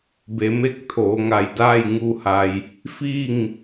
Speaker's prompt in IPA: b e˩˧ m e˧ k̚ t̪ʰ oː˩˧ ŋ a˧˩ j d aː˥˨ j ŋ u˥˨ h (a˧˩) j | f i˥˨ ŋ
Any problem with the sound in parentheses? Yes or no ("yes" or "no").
yes